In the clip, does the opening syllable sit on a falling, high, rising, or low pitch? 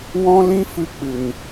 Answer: high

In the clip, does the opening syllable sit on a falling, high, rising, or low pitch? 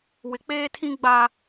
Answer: low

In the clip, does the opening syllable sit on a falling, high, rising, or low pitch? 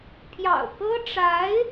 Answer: low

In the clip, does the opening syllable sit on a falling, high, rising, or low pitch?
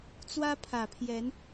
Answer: high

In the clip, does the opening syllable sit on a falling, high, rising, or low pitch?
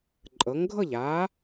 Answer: rising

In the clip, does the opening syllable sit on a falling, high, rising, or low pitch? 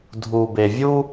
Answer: low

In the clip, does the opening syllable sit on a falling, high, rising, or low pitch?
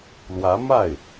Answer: rising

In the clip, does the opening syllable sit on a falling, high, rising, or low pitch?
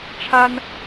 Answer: high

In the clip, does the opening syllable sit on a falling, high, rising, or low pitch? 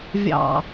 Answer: low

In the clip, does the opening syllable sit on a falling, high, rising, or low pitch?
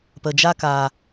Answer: low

